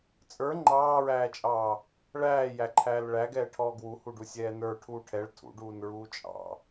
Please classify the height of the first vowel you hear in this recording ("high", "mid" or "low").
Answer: mid